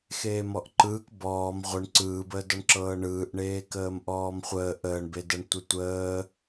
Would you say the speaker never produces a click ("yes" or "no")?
no